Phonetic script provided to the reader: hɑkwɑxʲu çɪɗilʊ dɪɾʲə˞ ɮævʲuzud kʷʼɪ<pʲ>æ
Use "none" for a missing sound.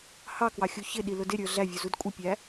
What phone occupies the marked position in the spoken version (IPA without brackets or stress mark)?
pʲ